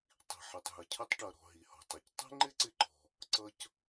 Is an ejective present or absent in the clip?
absent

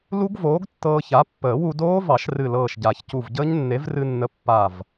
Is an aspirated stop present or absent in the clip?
absent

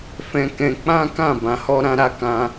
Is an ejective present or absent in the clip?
absent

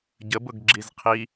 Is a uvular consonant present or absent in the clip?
present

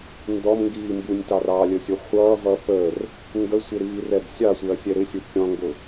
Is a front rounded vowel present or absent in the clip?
absent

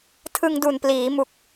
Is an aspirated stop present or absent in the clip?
present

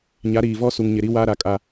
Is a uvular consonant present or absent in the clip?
absent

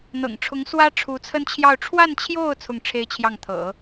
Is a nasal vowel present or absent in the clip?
absent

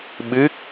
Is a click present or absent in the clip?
absent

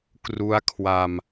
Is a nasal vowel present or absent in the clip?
absent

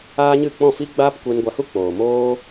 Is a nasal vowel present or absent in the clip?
present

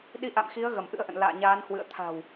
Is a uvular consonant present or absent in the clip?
absent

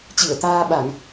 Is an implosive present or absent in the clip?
present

